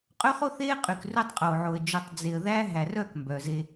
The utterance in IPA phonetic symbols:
qʼ ø˦ χ o˦ θ eː˦ qʼ y˨ k r ɵ˦ tˤ qʼ oː˨ ʕ o˨ ə̯ d͡ʒ ɵ˨ tˤ d͡z e˨ ə̯ ð æː˦ ɦ æ˨ r œ˦˨ k m b œ˨ z e˦

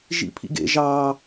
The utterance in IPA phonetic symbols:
ʒ ḭ pʰ ḭ ɡ ḛ ʒ ɑ

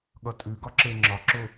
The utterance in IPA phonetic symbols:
ɠ ʌ tʼ ʉ ɡ ɒ ǁ e ŋ͡ǁ ɒ ǁ ʊ

